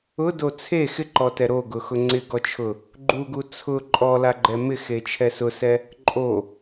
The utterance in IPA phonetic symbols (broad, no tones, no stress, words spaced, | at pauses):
ʊdo t͡sʰe xɪǃɔtɛ ɾoɡʊxʊ ŋ͡ǀɪɡɔt͡ʃʰʊ | ɡ͡ǃuɡu t͡sʰʊ ǃʼɔlaɡ͡ǃɛ mɪxet͡ʃʰɛ sʊsɛ | ǃʼo